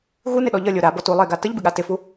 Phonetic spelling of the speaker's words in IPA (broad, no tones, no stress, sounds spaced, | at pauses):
ɣ u n ɪ ɗ ɔ ʎ ʌ lʲ o ɾ a b ɔ t u lˠ e ɡ a t ə ʎ b ɪ ɠ a t ɪ f u